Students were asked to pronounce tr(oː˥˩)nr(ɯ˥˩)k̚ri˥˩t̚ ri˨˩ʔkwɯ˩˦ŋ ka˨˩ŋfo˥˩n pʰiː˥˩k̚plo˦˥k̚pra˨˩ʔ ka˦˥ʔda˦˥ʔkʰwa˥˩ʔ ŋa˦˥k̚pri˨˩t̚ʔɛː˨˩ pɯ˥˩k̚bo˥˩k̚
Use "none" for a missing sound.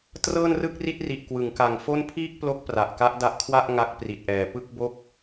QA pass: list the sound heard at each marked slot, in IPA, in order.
ɤː˥˩, ɯ˥˩

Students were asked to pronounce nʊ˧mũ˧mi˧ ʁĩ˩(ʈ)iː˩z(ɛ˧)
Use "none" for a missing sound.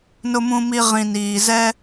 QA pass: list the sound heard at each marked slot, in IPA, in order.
n, ɛ˧

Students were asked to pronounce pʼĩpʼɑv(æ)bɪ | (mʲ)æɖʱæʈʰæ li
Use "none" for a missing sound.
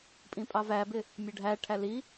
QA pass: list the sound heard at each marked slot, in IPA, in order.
æ, mʲ

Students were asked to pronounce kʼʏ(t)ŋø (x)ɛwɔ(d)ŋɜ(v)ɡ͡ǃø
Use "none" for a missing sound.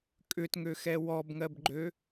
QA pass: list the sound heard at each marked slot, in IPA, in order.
t, x, b, b

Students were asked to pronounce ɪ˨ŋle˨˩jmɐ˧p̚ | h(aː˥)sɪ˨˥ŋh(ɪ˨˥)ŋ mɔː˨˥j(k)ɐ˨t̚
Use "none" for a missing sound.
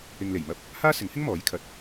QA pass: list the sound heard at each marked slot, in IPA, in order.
aː˥, ɪ˥, kʰ

